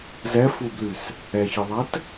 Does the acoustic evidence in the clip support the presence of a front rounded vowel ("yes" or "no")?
yes